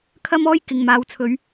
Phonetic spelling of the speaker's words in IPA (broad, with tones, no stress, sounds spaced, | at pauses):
kʰ ɐ˥ m ɔː˥ j k ɪ˨ ŋ m aː˨˧ w t͡sʰ ɵ˨˧ ɥ